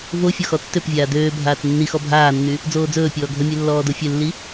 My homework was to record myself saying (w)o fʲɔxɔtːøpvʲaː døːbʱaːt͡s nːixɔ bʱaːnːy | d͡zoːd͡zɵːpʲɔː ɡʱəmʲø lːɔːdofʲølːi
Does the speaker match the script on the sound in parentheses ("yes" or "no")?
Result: no